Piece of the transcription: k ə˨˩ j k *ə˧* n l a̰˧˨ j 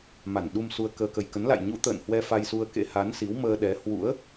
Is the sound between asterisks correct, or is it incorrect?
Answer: incorrect